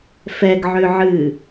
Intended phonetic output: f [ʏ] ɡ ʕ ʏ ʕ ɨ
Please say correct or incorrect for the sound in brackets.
incorrect